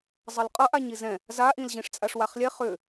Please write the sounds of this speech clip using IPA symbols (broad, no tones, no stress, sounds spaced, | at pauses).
zˤ ʌ l qʼ ʌ ʔ a ɲ i z ɛ̃ | z a ʔ ĩ l ʑ ĩ ʂ t͡sʼ a ʂ w a χ lʲ ɛ χ ʏ